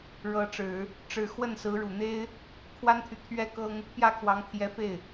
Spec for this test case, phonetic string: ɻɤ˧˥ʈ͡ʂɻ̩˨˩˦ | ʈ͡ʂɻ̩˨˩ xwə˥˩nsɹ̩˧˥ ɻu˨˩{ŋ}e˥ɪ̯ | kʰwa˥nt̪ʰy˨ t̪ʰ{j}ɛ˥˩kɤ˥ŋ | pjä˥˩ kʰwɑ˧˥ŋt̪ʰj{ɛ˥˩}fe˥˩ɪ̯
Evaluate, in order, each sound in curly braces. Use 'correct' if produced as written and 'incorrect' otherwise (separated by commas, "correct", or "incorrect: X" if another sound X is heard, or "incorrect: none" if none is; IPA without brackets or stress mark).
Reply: incorrect: n̪, incorrect: ɥ, incorrect: ɛ˧˥